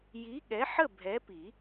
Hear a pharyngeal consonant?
yes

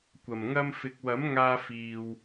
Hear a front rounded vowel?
no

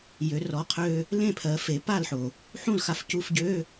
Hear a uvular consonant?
yes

